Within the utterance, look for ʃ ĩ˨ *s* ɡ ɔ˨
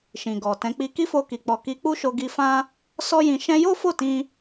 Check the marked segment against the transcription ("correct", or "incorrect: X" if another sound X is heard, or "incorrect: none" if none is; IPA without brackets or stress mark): incorrect: none